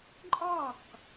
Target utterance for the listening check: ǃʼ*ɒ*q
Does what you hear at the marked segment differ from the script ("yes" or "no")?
no